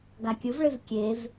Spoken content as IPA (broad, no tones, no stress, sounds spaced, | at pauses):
ɡ a kʲ ɯ v ɭ e v kʲ e v